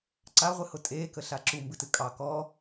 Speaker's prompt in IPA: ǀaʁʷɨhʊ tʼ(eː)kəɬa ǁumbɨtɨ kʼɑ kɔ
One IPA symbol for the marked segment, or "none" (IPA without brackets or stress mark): eː